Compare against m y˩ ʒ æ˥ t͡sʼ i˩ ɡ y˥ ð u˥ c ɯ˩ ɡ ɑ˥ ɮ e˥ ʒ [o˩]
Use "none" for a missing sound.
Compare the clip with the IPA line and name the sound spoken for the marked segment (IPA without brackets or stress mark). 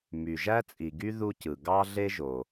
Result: o˩